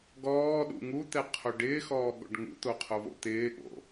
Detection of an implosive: present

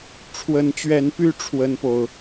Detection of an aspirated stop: present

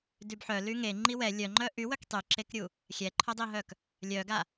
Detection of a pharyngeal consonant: present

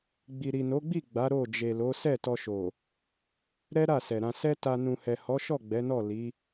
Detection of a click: absent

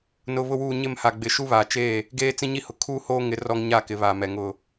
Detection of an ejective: absent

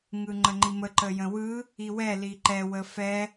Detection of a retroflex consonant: absent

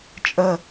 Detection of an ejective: present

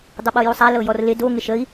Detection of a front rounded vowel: absent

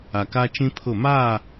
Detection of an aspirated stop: present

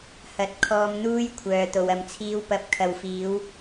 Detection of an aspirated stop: present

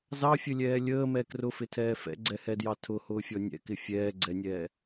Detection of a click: present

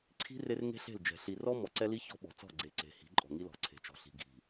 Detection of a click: present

